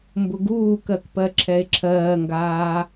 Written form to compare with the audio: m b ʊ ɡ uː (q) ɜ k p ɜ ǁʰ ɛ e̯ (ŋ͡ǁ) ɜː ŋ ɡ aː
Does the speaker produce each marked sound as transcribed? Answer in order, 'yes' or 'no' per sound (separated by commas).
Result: no, no